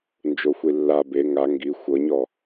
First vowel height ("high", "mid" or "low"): mid